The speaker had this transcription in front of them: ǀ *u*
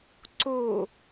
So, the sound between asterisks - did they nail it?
no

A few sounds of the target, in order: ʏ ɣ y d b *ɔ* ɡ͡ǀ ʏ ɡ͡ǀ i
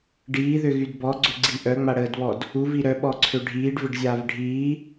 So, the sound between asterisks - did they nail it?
yes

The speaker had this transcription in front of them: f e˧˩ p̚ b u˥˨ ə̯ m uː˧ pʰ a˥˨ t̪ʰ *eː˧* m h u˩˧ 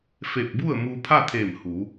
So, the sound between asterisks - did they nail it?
no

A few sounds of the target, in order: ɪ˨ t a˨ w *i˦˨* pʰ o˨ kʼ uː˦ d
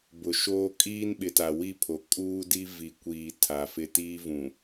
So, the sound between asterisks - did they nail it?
yes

